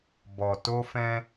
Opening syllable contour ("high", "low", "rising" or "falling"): low